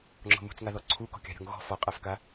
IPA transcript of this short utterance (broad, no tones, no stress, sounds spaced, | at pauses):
ŋ͡ǁ ɔ̤ m ṳ t͡s ŋ a ð ɔ ǀʰ u k ɔ̤ kʲ a̤ ɾʲ ɔ̤ ŋ ɣ ɔ̤ f ɔ qʼ a f k a